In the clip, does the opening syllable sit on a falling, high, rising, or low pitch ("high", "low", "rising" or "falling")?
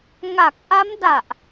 low